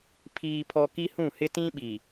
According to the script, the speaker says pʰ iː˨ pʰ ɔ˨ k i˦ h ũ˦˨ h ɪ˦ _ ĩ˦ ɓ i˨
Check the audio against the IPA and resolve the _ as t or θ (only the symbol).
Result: t